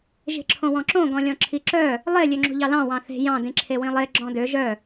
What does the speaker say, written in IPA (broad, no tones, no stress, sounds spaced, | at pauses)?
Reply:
ʒ e̤ ǁʰ õ w ɔ̃ ǁ õ ɡ ɔ̃ lʲ ɔ̃ ǁʰ i ǁ œ | lˠ e lʲ ø ŋ͡ǁ o̤ ʎ ɑ l ɑ̃ w ɑ̃ θ e̤ j ɑ̃ d ĩ ǁʰ e w ĩ lˠ e ɡ͡ǁ ɔ̃ d ø ʒ œ